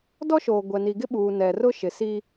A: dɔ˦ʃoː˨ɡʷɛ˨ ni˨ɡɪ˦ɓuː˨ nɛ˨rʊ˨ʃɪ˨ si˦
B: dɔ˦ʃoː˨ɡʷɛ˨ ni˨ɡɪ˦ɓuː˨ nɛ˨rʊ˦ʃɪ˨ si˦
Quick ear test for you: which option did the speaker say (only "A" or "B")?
B